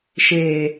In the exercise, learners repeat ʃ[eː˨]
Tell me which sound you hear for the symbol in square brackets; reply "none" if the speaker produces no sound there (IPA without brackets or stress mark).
eː˨